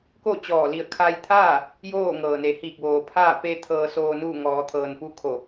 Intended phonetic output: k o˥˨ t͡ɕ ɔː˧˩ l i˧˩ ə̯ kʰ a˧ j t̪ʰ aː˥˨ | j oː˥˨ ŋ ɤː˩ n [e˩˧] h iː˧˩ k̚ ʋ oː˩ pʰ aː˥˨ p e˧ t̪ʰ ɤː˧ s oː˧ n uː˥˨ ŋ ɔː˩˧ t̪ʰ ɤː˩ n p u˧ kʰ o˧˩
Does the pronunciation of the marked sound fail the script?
no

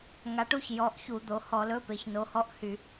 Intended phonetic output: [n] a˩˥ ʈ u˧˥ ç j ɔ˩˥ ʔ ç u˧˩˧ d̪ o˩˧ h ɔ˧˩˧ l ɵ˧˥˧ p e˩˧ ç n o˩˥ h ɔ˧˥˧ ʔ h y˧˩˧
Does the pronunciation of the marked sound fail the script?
yes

